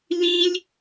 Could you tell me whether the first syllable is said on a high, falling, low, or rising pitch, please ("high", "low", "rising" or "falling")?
high